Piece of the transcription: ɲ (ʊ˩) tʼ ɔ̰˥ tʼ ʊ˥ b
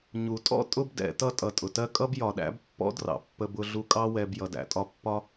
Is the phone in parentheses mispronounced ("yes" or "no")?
yes